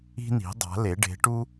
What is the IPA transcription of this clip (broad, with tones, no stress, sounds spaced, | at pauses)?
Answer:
i̤˧ n i̤˩˧ dˤ a̤˩˧ l e˩˧ ɖ e̤˩˧ ʈ u˧